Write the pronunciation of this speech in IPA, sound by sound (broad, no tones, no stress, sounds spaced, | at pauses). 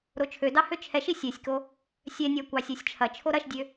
ɾ o t͡ʃʰ ø d ɑ h ø t͡ʃʰ ɛ ʃ i sʲ ɛ sʲ k o | sʲ ɛ nʲ a kʷ ɑ sʲ u sʲ t͡ʃʰ ɐ t͡ʃʰ o ɾ ɐ ʃ dʲ ø